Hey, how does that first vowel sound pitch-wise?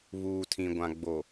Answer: low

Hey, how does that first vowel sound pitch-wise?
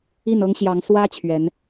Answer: falling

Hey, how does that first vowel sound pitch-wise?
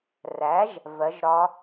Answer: rising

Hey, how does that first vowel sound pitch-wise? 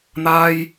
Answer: high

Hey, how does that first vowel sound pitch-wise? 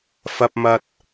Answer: high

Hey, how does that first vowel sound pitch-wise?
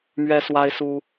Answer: high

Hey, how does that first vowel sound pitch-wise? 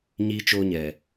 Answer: low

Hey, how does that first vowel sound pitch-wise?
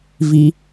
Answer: low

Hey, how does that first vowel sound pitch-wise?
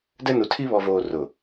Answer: high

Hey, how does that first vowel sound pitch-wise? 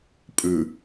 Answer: low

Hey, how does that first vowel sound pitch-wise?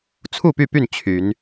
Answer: falling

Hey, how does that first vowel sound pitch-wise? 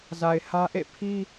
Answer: low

